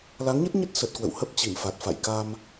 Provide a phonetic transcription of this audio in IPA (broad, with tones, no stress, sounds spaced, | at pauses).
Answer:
l a˨˦ ŋ ɲ ə˦˥ t̚ ɲ ə˦˥ t̚ s ə˨˩ t̚ k w ə̰˧˨ w h ə˦˥ p̚ t͡ɕ i˧˩ m f a˨˩ t̚ f a̰˧˨ j k a˧ m